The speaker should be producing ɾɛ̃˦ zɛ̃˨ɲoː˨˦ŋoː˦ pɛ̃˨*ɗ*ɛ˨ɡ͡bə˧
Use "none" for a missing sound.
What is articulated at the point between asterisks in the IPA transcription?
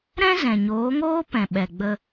ɓ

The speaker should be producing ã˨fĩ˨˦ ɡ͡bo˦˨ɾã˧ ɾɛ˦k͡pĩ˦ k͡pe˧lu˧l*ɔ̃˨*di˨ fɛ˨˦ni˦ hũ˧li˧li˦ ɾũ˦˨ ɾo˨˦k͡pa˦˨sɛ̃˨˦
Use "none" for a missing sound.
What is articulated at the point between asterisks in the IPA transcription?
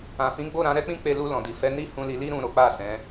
ɔ̃˨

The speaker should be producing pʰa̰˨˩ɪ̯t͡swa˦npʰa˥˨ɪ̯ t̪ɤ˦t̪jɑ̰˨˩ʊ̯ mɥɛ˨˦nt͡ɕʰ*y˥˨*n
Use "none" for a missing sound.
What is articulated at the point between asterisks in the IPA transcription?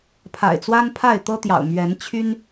y˦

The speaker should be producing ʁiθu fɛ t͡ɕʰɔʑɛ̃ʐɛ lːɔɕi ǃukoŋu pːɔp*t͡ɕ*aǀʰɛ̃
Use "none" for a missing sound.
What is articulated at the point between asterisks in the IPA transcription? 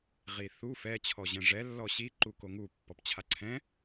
t͡ɕʰ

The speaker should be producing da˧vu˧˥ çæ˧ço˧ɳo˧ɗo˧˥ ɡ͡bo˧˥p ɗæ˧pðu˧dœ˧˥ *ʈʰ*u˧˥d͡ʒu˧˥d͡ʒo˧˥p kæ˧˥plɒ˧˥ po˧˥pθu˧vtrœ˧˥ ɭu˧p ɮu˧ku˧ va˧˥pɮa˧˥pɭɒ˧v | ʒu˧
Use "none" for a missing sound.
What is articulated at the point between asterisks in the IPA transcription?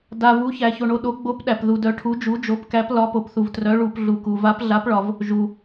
ʈʰ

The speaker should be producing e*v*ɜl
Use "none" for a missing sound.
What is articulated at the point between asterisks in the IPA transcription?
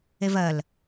v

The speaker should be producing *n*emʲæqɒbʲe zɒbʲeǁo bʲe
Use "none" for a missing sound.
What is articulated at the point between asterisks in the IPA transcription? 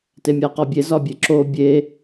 t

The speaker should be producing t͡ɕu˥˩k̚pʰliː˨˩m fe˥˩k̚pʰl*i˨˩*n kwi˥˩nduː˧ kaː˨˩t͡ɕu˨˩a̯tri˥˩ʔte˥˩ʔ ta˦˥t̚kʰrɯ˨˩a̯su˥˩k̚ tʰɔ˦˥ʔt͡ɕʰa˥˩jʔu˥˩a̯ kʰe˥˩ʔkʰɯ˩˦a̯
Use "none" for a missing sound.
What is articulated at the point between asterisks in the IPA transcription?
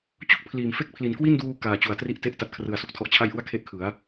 i˨˩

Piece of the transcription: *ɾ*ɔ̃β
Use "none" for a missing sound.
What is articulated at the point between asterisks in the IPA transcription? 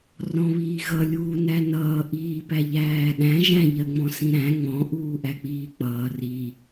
r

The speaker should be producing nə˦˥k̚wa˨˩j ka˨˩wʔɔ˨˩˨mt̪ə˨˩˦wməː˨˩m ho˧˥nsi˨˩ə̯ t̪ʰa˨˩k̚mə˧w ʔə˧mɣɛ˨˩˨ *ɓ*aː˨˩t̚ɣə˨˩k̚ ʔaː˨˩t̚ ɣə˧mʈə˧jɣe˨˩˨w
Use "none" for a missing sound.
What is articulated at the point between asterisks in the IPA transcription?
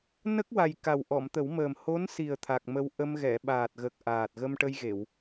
ɓ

